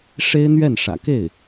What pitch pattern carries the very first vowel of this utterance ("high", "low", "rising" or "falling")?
high